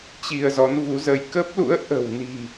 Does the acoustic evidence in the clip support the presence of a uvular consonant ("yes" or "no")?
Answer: no